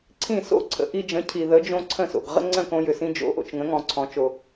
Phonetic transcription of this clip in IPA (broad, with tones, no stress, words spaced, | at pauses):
ǀʰĩ˥˩so̰˥˩ǀʰə̰˩˥ ʔi˧d͡ʒə̃˩˥cʰi˩ ðə˩˥d͡ʒõ˧ ǀʰə̃˥˩so̰˩ɡ ʁə̰˥ŋ͡ǀə̃˥˩ kõ˧jʏ˩sĩ˧ d͡ʒo̰˩˥ʔo̰˩t͡ʃŋə̃˩˥ŋɔ̃˩ ǀʰɔ̃˩˥t͡ʃo˩